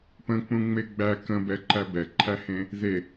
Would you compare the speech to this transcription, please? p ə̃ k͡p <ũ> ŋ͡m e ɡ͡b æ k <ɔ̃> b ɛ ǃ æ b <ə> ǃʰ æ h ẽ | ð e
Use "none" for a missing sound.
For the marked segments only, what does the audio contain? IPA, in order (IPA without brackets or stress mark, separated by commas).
ũ, ə̃, ɛ